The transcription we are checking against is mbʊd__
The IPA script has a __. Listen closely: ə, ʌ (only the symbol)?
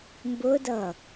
ʌ